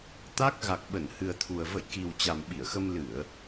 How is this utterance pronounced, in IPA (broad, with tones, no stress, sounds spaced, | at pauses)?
t̪ a˦˥ k̚ ɣ a˨˩ k̚ ɓ ə˧˩ n h ɨ˨˩ ə̯ t̪ʰ u˨˩ ə̯ v ə̰˧˨ j k i˨˩ w t͡ɕ a˨˩ m ɓ i˧˩ ə̯ x ə˧ m l ɨ˧˩˨ ə̯